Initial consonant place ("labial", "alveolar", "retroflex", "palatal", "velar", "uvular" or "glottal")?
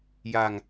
palatal